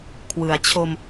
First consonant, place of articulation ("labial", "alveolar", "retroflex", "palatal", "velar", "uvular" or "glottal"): velar